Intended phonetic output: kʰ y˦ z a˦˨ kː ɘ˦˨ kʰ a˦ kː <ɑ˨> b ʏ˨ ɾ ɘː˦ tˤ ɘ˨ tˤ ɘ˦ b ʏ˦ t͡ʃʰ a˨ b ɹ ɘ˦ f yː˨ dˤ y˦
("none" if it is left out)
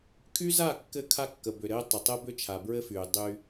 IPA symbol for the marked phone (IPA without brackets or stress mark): ə˨